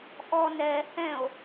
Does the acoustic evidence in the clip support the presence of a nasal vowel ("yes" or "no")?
yes